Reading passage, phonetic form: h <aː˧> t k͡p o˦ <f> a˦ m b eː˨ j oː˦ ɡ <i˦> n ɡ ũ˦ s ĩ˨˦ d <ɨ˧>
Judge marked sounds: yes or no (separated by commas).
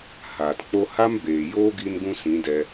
no, no, yes, no